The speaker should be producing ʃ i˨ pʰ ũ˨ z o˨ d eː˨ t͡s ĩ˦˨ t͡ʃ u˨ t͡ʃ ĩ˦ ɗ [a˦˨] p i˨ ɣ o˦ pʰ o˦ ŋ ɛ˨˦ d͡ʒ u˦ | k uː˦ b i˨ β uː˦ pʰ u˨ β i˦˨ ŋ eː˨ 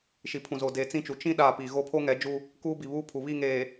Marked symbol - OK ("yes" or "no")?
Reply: yes